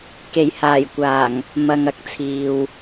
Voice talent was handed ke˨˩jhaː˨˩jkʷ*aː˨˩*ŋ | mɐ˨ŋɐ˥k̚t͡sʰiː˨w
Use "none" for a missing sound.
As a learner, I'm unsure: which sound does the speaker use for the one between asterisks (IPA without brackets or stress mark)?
aː˨˩